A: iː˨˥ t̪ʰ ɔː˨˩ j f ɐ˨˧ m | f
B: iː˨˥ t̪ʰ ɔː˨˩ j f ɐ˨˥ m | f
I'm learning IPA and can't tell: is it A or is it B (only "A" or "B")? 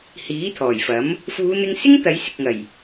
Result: B